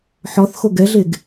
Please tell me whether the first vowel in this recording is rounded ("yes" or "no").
yes